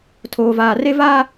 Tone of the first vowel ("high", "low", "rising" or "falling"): low